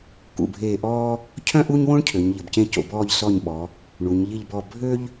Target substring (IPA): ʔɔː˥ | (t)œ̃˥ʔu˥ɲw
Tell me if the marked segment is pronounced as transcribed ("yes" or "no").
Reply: no